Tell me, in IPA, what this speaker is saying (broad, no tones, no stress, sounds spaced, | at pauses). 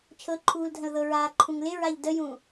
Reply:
t͡ʃʰ ɤ ǃʰ uː l dʱ ə̃ l ð ɤ ɹ aː ǃʰ ũ ŋ l ɪ ɹ a ʎ d ə j ũ